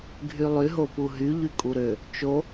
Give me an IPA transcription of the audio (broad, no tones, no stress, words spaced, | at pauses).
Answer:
ɡʱylˠy ɦopuɦy ʎykʼuɾø | t͡ʃo